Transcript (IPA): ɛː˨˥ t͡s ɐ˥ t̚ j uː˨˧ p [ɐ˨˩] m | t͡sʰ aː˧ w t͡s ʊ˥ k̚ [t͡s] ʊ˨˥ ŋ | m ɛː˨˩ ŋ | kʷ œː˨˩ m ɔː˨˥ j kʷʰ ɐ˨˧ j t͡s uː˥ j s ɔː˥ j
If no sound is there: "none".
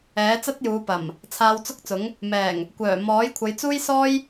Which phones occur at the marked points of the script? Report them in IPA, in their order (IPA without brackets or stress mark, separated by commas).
ɐ˨˩, t͡s